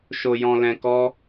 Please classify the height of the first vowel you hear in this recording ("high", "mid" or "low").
mid